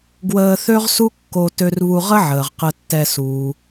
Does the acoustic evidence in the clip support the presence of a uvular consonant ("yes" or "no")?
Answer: yes